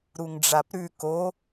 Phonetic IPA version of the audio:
ɾ u ŋ ɖ͡ʐ a p ɾ ʉ k o

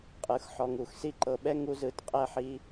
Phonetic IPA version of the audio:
qʼ ɯ˨˦ x ħ ɔ˧ ŋ u˨ x s i˦ ǃ ɤ˧ ɓ ɛ˦ ŋ u˧ z ɯ˨˦ t qʼ ɛ˧ ħ i˧

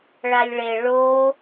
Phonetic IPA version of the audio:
ɭ a lʲ ɭ e ɭ o

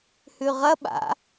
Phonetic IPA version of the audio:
h ʉ ʁ ɐ ɓ a̰

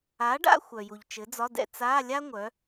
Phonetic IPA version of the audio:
a˨˥ ɖ a̰˥˧ xʷ œ˨ j u˨ ʎ t͡ʃ ɘ˨˥ d͡z ɒ˧˥˧ d ɛ̰˥˧ t͡s a˧˥˧ lʲ a˥ ŋʷ œ˨˥

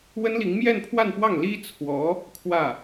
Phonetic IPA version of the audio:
w ə˥ n l i˧˥ ŋ m j ɛ˥˧ n pʰ w a˥˧ n p w ɑ˥˩ ŋ l i˥ t͡sʰ w ɔ˧˥ | kʰ w ä˥˩

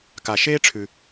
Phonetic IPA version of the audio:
k a˩ ʃ eː˥ ʈ͡ʂʰ ʉ˩

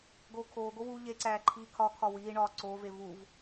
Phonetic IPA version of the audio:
ɡ oː kʰ oː ɡ o w u ʎ e ǀ æː ǃʰ iː kʰ ɒ kʰ ɒ w iː ɳ ɒː ǀ oː v e v u v

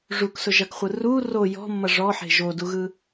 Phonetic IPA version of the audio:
ʐ u k s ʊ ʒ ɐ k χʷ ɯ r u r o j ɔ̤ mː ʌ ʐ ɔ ħ e̤ ʒ o d u ɣ ɯ

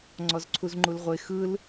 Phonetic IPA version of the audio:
ŋ͡ǀ ɔ z ǀʰ u z ŋ͡ǃ u l ʁʷ e x ɯ l

